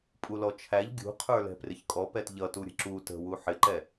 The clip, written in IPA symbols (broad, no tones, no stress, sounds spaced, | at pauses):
pʼ u l ɔ t͡ʃʰ æ ʎ ɡʲ ṳ qʰ ə˞ l ɛ̤ p r ɪ ç kʼ ɔ p ɛ t ʎ ʌ t u ɾʲ ə̤ ǁ u t ə̤ w u ħ ɪ ǃ ɛ